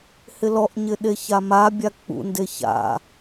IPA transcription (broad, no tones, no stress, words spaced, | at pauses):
hɪlɔʔɲɪ ɗeçamabʲa k͡pṵnde ça̰